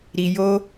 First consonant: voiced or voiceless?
voiced